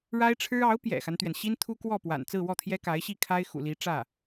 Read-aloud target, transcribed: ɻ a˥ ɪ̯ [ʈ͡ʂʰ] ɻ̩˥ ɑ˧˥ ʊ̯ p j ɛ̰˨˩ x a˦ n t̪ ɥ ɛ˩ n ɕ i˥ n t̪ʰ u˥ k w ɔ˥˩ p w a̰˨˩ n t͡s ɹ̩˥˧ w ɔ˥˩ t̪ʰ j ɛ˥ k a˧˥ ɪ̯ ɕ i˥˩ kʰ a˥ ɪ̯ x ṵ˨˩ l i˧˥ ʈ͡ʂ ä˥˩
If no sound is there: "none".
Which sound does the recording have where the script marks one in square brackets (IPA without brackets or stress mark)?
ʈ͡ʂʰ